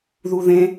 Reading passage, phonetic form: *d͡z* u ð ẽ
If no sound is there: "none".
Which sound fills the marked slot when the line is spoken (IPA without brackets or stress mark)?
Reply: ð